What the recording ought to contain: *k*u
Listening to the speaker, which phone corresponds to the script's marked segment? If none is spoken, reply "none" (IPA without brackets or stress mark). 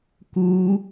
k